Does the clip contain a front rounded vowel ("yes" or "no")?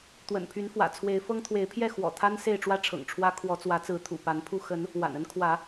yes